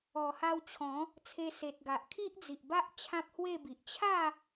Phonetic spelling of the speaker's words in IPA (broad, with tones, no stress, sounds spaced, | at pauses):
ɔ˨˩ h a˧ w t͡ɕʰ ɔ̃˨˦ | t͡sʰ e˧ s e˨ t̚ ɡ a˨ ʔ kʰ i˦ ʔ d͡z i˨ ʔ b a˦ ʔ t͡ɕʰ ã˦ p̚ h w e˥˧ b i˨ ʔ t͡ɕʰ a˥˧